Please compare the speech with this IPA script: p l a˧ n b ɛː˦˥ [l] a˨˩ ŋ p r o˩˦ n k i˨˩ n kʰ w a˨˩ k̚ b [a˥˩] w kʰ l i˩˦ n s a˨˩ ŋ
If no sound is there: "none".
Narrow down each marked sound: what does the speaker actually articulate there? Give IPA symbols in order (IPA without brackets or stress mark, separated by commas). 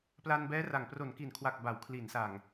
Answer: r, a˩˦